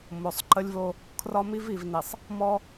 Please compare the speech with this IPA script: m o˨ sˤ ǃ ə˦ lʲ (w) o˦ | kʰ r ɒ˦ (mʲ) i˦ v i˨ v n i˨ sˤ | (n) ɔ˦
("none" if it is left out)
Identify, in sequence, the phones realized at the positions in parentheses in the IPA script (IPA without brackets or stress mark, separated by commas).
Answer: v, m, m